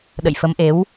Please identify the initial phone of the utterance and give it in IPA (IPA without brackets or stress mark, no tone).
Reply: ɗ